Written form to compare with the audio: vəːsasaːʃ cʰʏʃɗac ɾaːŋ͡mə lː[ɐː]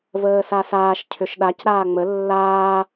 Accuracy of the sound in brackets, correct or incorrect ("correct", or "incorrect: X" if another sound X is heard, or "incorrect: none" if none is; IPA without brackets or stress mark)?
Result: incorrect: aː